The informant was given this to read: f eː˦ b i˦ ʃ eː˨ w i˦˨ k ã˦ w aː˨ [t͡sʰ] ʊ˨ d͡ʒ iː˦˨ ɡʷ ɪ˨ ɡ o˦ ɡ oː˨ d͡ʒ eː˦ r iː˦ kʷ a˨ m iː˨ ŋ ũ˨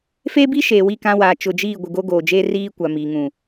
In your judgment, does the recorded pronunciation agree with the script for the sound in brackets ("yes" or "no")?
no